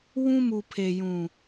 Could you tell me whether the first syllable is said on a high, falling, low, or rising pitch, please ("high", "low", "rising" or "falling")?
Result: high